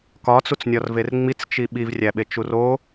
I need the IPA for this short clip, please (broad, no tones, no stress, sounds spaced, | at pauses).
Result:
k ɒ t͡s u t͡s nʲ ɒ r v e r ŋ͡m i t͡s t͡ʃ i ɓ i v rʲ æ ɓ e t͡ʃ u r o